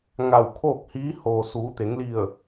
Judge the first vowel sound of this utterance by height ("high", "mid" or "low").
low